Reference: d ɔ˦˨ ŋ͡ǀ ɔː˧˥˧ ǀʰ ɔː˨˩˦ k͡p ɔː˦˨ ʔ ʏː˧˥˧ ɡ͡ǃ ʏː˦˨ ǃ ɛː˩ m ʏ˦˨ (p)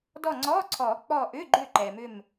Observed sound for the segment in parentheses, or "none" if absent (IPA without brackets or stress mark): m